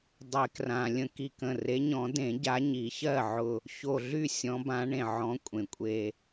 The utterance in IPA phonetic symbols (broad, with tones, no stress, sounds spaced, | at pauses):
dˤ e˨˩˦ k r ã˩ lʲ ə̃˧˩ k i˧˩ k ə̃˧˩ r e˨˦ ɲ ɔ̃˨˩˦ d ẽ˨˩˦ ɟ a˨˦ ɲ i˨˩˦ ç ɜ˥˩ ʕ ʊ˧˩ | ç o˧˩ ɮ y˥˩ sʲ ɔ̃˨˦ b ã˨˦ ɳ ẽ˩ ʕ ɔ̃˨˦ kʷʼ ẽ˩ kʷʼ e˧˩